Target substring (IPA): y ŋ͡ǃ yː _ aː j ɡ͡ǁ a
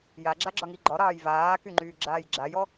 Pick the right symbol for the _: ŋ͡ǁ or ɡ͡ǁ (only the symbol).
ɡ͡ǁ